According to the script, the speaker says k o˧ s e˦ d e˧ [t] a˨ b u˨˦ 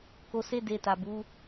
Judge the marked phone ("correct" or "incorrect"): correct